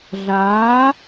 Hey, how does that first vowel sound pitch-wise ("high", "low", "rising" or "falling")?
rising